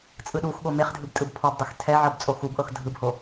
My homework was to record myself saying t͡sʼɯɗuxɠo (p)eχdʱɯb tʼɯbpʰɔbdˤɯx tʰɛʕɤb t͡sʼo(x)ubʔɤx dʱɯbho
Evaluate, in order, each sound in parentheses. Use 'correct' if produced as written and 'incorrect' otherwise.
incorrect: m, correct

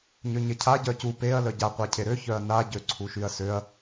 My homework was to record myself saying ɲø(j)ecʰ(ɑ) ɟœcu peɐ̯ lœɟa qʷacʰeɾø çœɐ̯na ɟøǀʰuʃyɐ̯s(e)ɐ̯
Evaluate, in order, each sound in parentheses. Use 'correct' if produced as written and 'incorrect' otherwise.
incorrect: ɲ, incorrect: a, incorrect: ø

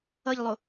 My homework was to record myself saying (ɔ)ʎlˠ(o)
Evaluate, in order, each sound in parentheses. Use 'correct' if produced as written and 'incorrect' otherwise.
incorrect: ʌ, correct

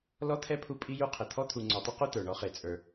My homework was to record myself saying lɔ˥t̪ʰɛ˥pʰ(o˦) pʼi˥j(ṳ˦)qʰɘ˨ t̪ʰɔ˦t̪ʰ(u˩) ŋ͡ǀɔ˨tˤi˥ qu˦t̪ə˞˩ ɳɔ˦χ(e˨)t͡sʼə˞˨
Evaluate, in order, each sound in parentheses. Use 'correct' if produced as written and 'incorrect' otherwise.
incorrect: u˦, incorrect: u˦, incorrect: u˨, correct

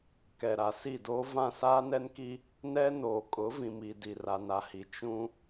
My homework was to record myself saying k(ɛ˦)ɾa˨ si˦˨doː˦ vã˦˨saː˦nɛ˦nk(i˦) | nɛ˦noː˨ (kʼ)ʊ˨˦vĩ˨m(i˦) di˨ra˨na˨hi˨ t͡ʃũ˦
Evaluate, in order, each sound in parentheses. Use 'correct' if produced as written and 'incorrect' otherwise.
incorrect: ɛ˨, correct, correct, incorrect: i˨

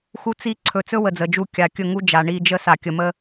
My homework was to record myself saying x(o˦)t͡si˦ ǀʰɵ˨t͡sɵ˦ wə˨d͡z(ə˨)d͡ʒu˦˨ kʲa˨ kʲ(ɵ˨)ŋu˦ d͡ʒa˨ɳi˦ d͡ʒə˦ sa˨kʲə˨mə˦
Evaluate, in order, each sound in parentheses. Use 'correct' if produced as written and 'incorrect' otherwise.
incorrect: u˦, correct, incorrect: ɵ˦˨

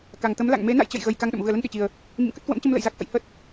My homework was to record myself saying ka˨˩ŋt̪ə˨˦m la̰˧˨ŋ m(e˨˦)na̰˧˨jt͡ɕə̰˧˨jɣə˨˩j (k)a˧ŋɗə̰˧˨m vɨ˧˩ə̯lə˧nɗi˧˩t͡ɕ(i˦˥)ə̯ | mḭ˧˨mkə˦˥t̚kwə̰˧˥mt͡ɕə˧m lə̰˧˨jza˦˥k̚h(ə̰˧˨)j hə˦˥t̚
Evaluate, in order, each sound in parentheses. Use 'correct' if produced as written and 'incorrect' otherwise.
correct, correct, incorrect: i˨˩, correct

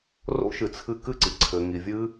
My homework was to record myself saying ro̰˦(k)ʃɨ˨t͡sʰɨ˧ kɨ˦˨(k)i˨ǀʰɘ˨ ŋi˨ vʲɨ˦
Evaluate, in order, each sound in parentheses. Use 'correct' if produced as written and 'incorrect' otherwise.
incorrect: none, incorrect: ǀ

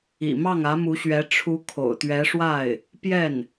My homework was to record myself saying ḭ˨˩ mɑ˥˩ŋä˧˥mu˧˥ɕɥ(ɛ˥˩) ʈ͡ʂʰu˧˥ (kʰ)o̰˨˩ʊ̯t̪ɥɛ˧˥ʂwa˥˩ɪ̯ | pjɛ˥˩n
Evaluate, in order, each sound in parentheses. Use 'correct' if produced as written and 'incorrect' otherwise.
incorrect: ɛ˧˥, correct

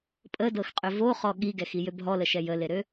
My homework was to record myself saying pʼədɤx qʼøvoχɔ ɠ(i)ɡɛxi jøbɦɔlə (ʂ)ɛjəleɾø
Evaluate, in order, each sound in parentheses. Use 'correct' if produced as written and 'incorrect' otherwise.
correct, incorrect: ʃ

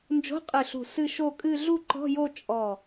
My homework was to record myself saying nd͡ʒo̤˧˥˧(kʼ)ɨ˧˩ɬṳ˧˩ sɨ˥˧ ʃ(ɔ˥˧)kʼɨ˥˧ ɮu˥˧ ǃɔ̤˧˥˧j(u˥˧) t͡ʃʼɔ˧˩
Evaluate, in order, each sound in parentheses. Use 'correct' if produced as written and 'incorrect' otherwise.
incorrect: qʼ, incorrect: o˥˧, incorrect: o˥˧

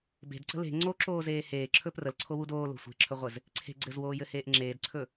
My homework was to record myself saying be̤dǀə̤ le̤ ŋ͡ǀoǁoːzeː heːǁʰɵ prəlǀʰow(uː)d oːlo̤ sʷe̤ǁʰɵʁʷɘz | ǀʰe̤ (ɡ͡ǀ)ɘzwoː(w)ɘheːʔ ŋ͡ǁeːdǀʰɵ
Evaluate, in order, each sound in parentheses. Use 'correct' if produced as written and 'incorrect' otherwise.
incorrect: u, correct, incorrect: j

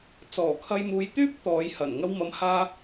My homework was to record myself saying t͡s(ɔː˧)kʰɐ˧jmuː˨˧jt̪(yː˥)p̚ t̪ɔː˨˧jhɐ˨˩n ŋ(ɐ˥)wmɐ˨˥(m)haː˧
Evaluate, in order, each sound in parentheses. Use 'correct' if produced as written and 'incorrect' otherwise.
incorrect: ɔː˨˩, correct, incorrect: ɐ˧, correct

